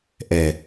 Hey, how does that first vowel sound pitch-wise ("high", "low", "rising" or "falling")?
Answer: low